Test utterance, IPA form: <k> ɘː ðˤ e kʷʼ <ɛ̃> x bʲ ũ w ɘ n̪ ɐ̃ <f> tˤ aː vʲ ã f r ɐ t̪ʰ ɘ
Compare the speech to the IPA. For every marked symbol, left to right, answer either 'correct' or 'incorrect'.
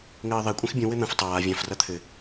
incorrect: ŋ, correct, correct

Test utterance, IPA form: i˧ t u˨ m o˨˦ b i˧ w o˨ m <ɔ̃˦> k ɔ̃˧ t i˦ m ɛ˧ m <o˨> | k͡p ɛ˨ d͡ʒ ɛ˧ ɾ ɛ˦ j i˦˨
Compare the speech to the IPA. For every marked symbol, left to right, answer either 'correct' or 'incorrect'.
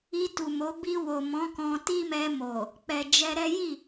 incorrect: ɔ̃˨˦, correct

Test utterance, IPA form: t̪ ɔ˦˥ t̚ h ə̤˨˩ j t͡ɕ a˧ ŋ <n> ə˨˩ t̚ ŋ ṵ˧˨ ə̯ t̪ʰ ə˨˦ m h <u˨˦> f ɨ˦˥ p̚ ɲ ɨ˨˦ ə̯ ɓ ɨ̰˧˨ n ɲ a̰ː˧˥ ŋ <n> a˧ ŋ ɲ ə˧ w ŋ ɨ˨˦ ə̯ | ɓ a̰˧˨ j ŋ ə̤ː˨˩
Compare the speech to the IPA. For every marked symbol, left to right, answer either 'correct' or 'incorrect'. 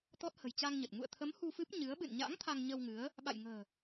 incorrect: ɲ, incorrect: u˧, incorrect: t̪ʰ

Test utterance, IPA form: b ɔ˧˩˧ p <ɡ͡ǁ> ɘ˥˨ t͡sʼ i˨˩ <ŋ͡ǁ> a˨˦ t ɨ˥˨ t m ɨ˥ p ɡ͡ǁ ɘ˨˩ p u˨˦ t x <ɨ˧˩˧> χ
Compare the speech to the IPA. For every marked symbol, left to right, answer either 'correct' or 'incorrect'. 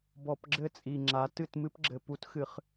correct, correct, correct

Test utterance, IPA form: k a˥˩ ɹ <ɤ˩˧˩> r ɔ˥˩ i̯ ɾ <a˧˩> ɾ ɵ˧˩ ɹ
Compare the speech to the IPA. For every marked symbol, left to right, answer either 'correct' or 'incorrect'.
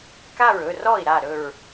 incorrect: ɵ˩˧˩, correct

